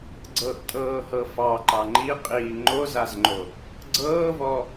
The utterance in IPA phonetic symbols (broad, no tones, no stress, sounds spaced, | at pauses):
ɡ͡ǀ ɤ ʔ tʼ ɤː h ɤ f ɑ ǃ ɑ ŋ͡ǃ i qʼ iː ŋ͡ǃ o z a z ŋ͡ǃ o | ɡ͡ǀ ɤː v ɔ